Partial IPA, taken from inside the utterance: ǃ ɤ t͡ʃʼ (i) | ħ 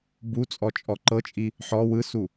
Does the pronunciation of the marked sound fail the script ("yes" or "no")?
no